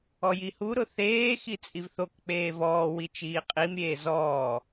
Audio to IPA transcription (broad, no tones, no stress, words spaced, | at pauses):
ɔjihu ɾʊθeː xit͡sʼivθok k͡peːvɔː wit͡ʃiːqʼim ɾʲeːzɔː